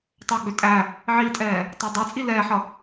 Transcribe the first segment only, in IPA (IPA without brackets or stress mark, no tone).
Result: tˤ